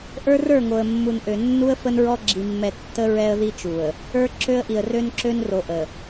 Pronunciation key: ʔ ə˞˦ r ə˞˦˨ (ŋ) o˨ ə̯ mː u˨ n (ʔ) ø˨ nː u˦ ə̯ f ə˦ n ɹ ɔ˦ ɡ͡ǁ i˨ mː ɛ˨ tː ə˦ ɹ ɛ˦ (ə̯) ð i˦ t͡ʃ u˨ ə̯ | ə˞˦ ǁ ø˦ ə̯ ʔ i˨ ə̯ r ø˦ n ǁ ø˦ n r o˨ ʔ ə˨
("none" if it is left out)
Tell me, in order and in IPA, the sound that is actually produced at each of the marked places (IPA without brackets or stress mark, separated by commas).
ŋ, ʔ, ə̯